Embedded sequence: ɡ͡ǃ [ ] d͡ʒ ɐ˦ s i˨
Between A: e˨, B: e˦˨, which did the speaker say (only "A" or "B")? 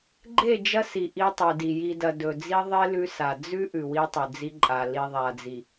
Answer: B